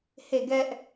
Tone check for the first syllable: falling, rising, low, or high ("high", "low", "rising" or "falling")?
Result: falling